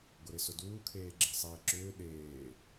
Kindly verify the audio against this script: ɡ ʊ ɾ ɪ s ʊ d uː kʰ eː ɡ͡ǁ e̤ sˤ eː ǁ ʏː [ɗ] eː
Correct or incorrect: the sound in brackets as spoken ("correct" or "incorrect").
correct